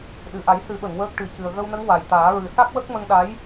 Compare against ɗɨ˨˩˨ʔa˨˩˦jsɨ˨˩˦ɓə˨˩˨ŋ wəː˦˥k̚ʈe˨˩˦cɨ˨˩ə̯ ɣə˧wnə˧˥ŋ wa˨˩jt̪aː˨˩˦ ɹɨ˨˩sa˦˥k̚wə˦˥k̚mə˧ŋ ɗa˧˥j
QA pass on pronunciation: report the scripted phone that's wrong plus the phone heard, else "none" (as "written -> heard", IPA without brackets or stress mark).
e˨˩˦ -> ɨ˨˩˦